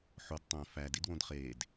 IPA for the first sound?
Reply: ħ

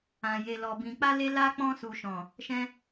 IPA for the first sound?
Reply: ã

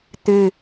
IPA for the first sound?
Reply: t̪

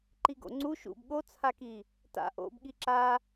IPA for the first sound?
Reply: ǃ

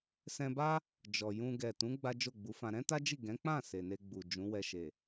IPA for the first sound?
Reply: s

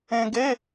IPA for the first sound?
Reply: ẽ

